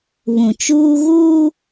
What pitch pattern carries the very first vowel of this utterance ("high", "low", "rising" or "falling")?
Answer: low